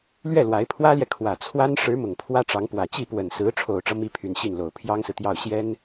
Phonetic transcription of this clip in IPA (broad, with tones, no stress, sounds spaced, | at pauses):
l ɥ ɛ˥˩ l w a˧˥ ɪ̯ pʰ w ä˥ l j ɛ˨ kʰ w ä˨˩ t͡sʰ w a˥ n ʂ ɻ̩˧˥ m ʊ˨˩ ŋ pʰ w ä˥ ʈ͡ʂ ɑ˧˥ ŋ p w ä˨˩ t͡ɕ i˥˩ p w ə˨˩ n s ɹ̩˧˥ ʈ͡ʂʰ o˨˩ ʊ̯ ʈ͡ʂ ɤ˦ m i˥ pʰ y˨˩ n ɕ i˥˩ n l o˨˩ ʊ̯ pʰ j ɑ˥ ŋ s ɹ̩˨ t̪ j ɑ˥˩ ʊ̯ ɕ j ɛ˥ n